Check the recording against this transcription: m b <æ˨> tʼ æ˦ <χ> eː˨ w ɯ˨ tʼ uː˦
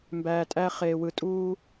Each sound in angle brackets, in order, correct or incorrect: incorrect, correct

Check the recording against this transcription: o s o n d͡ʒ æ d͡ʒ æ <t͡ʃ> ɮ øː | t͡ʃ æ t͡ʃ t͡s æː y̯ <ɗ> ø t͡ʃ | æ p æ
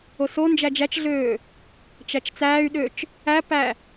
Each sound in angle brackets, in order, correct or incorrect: correct, correct

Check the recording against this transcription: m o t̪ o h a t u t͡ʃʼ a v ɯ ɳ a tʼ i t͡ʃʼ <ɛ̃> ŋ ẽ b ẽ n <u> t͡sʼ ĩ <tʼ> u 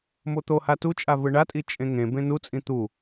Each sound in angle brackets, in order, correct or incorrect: incorrect, correct, incorrect

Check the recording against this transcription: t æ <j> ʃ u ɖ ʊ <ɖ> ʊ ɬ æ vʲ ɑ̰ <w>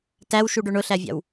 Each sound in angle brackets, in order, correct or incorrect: incorrect, incorrect, correct

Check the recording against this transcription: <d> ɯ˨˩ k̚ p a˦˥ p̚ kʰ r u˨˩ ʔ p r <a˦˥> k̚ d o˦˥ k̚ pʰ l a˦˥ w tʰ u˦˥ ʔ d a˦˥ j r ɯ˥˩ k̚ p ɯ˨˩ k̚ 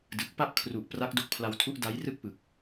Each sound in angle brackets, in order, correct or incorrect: correct, correct

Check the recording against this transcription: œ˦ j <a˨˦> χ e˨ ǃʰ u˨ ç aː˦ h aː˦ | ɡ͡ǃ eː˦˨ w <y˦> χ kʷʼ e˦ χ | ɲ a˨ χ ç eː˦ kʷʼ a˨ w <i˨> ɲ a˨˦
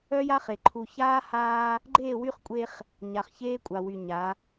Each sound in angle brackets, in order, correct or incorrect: incorrect, correct, incorrect

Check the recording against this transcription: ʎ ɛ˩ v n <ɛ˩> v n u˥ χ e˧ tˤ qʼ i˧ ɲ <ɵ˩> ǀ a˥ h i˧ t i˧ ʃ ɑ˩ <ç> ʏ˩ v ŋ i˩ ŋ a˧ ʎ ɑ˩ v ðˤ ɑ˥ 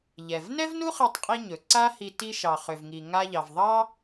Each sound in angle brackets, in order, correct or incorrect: incorrect, correct, incorrect

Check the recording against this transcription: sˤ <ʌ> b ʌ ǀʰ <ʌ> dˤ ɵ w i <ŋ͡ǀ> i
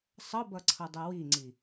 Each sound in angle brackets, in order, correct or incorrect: correct, correct, correct

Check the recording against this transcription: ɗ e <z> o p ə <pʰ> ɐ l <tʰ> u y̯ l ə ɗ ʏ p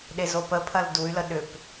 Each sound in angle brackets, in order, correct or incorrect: correct, correct, incorrect

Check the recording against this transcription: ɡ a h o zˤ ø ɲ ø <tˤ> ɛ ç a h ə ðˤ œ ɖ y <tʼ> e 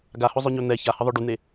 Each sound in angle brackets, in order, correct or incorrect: incorrect, incorrect

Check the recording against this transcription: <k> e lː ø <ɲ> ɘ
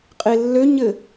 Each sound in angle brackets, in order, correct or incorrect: incorrect, correct

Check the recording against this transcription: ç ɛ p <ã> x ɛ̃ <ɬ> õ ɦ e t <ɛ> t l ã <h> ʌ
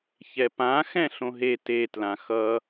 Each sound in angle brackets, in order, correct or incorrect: correct, correct, incorrect, incorrect

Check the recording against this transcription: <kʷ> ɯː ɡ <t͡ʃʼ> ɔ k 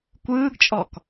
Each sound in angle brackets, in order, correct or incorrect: correct, correct

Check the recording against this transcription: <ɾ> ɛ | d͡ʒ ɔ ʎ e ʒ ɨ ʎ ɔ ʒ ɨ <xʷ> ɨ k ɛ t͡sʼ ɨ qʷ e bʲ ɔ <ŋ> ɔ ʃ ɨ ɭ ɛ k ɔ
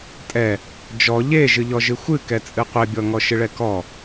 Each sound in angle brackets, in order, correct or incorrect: incorrect, correct, correct

